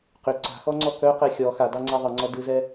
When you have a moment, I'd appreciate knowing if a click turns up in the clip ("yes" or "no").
yes